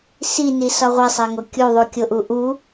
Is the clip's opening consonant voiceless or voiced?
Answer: voiceless